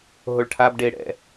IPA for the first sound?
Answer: ɦ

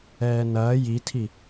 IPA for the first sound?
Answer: ɛː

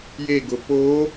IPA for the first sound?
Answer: j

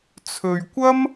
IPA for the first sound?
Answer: t͡sʰ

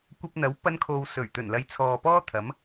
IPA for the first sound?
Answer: kʷ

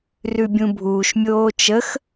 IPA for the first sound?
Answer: r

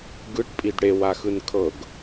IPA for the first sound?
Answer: ɡ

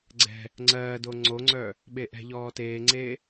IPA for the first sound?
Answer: ɡ͡ǀ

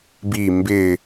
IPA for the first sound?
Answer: b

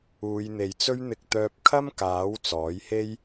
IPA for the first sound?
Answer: uː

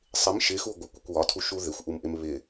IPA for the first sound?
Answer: sˤ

